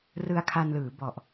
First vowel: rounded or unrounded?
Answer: unrounded